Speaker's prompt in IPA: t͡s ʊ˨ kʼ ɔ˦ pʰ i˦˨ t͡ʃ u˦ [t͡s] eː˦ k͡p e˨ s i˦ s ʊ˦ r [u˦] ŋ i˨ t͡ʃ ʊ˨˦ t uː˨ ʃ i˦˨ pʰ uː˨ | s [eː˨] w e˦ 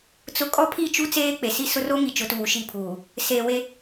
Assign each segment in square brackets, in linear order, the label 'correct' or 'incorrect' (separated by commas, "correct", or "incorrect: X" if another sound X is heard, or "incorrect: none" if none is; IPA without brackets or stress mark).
correct, incorrect: o˦, correct